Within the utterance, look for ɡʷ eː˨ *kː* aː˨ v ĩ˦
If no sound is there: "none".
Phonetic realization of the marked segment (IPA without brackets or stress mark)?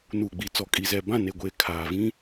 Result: kʰ